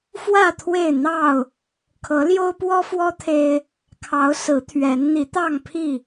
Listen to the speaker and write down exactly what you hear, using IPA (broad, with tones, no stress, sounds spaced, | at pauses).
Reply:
f w ä˥˨ t̪ʰ w e˥˨ ɪ̯ n̪ ɑ˥˨ ʊ̯ | kʰ ɤ˨˦ l j o˦ ʊ̯ p w ɔ˦ f w ɔ˦ t̪ʰ e˦ ɪ̯ | kʰ ɑ˨˦ ʊ̯ s ɹ̩˨˦ t̪ʰ ɥ ɛ˨˦ n n̪ i˨˦ t̪ ɑ˥˨ ŋ pʰ i˥˨